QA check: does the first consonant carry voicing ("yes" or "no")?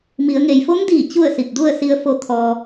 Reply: yes